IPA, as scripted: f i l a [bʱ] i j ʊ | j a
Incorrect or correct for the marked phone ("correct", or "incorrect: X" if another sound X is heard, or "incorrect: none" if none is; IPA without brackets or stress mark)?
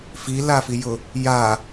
incorrect: f